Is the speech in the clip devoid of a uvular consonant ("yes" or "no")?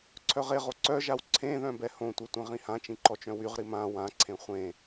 no